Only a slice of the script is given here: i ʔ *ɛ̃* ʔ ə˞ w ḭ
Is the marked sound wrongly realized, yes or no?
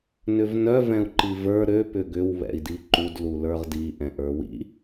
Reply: no